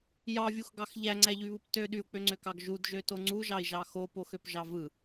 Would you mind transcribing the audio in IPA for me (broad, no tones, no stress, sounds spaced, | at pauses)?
j ɑ vʲ u x ɡ ɑ x ʎ æ ŋ͡ǀ æ ʎ y β ɯ p t ø ɗ y u̯ k͡p ø ŋ͡ǀ ø k ɑ ɡ ʒ u d ʒ ø t o ŋ͡ǀ u ʒ ɑ i̯ ʒ ɑ x o p o x ø p ʒ ɑ v ɯ